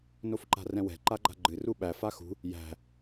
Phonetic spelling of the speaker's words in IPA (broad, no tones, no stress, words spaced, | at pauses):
nofǃa̤rɛ̃wɛ̤ ǃaɡ͡ǃa̤ɡ͡ǃɨ ruɓæ faxṳ | jæ̤